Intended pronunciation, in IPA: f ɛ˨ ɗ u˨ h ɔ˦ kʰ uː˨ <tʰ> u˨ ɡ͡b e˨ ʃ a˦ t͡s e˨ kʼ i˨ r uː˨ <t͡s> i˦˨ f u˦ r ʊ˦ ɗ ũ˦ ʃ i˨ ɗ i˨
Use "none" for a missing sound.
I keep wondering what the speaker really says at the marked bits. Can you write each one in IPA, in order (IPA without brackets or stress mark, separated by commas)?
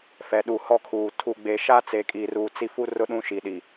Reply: tʰ, t͡s